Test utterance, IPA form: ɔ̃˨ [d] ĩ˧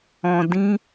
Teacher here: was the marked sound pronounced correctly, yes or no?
yes